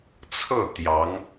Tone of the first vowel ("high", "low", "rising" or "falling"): falling